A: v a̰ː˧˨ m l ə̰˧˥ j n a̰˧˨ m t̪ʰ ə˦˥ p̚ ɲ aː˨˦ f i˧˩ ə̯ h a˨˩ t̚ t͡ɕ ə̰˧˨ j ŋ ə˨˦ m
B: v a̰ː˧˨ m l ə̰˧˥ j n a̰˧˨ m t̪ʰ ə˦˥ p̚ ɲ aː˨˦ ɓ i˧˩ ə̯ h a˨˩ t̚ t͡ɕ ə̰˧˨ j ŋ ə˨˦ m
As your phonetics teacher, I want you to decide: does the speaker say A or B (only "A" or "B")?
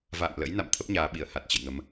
B